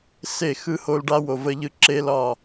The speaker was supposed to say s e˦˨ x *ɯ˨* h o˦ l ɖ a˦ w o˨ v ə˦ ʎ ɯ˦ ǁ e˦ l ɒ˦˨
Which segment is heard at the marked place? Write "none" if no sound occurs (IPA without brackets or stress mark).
ɯ˦